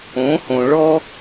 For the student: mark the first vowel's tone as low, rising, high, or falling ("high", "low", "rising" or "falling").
rising